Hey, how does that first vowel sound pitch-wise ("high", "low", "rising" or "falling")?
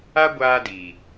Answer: high